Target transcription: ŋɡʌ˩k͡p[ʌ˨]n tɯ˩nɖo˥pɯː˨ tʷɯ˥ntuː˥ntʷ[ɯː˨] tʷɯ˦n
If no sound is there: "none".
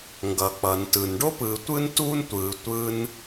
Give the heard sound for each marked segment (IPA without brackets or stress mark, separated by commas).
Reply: ʌ˩, ɯː˨